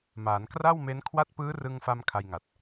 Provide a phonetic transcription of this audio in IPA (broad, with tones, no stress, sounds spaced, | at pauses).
m aː˩˦ n k r a˥˩ w m e˦˥ n kʰ w a˦˥ t̚ p ɯː˦˥ r ɯ˧ ŋ f a˧ m kʰ a˧ j ŋ a˨˩ t̚